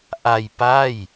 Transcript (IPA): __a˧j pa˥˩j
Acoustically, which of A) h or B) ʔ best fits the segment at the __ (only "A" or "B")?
B